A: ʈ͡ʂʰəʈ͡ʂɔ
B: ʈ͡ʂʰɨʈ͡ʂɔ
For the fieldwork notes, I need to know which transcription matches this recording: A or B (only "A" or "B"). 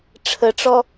A